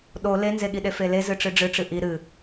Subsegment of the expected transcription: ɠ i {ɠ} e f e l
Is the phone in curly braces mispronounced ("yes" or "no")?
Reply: yes